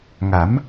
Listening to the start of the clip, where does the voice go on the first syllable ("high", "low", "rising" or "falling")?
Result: rising